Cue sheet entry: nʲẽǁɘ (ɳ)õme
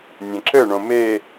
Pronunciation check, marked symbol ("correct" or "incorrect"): correct